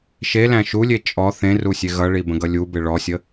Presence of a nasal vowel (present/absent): present